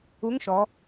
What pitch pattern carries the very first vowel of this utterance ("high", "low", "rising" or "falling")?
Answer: rising